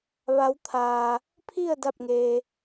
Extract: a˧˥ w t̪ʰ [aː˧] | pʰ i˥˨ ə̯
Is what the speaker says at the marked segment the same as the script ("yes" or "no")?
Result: yes